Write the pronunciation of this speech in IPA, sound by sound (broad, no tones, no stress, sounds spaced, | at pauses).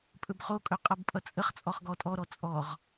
pʼ ɵ b χ o kʼ ɵ qʼ ʌ b pʼ ʌ t͡sʼ ə χ t͡sʼ ɔ χ ɡ ɔ tʼ ɔ ɾ ɔ t͡sʼ ɔ ʁ